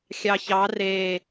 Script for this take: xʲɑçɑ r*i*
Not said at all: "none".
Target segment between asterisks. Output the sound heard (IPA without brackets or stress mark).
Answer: e